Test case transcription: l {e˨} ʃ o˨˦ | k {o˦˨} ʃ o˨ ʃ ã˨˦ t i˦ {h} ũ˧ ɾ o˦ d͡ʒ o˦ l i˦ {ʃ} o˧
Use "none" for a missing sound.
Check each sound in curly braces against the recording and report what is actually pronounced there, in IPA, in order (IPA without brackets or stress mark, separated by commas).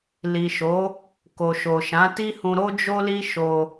i˨, o˨, h, ʃ